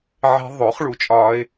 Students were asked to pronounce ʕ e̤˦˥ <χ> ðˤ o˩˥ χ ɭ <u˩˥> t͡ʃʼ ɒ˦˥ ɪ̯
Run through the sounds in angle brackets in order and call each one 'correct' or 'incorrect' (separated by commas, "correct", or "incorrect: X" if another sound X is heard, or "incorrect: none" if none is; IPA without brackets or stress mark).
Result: incorrect: none, correct